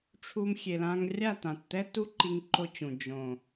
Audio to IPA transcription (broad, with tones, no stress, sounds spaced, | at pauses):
ʈ͡ʂʰ u˧ m xʲ e˨ l ã˧ ŋ rʲ a˦˨ t̪ ã˨ t t̪ ɛ˦ t u˦ ǃ i˧ ŋ ǃ o˧ t͡ɕ ũ˨ d͡ʒ õ˨